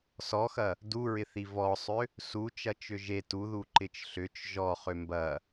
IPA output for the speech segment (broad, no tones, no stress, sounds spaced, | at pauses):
s ɔ x ɐ | d u ɹ ɪ θ i v ɔ sˤ ʏ | s u t͡ʃ ɐ t͡ʃ ʏ ʒ e t u ð u ǃ ɪ t͡ʃ ɬ ʏ t͡ʃ ʒ ɔ χ ʏ m b ɐ